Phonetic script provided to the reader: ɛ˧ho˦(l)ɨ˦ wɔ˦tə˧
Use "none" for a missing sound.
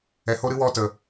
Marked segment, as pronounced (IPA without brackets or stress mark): ɾ